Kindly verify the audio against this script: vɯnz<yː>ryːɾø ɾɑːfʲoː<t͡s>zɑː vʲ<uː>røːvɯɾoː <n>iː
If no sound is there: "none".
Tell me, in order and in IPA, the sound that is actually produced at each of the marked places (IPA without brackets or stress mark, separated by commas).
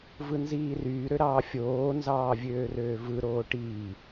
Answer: iː, n, øː, ʈ